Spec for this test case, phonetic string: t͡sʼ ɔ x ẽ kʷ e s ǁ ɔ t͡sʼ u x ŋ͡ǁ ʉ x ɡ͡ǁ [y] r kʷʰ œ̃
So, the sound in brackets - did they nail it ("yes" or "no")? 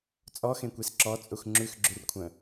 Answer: yes